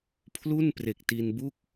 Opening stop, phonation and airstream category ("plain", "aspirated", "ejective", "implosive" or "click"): aspirated